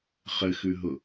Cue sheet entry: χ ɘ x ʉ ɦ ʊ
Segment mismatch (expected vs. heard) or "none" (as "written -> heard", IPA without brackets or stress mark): none